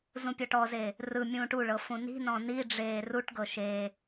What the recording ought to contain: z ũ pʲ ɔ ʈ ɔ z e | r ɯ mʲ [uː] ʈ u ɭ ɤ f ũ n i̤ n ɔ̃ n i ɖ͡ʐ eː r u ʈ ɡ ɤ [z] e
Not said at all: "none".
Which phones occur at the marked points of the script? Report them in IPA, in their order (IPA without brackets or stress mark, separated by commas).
ũː, ʃ